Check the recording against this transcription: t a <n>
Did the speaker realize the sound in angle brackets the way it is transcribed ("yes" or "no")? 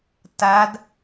no